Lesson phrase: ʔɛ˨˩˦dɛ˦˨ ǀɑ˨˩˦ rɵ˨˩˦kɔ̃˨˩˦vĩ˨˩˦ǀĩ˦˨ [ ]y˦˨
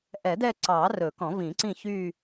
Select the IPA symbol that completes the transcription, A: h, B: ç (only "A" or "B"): B